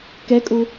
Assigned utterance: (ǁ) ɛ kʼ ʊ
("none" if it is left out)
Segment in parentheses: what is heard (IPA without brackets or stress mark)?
k